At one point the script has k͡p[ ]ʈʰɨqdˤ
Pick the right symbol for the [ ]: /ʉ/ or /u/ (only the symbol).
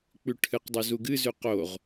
ʉ